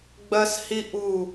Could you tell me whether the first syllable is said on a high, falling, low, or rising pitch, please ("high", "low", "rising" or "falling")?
high